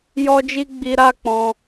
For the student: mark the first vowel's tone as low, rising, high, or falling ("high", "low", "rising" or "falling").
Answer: high